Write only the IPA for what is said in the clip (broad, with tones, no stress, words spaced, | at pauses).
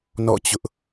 nɔ̰˦˨t͡ɕʊ˦ʔ